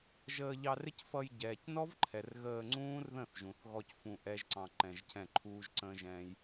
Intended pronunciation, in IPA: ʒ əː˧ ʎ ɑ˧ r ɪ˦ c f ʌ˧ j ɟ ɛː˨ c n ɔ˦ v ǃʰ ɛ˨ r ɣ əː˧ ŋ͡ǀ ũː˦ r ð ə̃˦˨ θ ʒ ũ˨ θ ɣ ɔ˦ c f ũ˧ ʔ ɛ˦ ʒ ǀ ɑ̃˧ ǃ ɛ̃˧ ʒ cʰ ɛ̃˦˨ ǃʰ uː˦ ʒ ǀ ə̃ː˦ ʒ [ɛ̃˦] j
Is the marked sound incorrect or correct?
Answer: correct